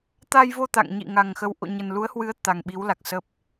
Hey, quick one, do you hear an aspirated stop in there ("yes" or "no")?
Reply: no